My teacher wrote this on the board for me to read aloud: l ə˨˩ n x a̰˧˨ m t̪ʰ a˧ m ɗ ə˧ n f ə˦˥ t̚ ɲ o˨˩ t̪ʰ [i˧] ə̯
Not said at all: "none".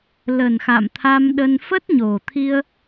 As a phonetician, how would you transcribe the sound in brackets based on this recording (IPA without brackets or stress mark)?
i˧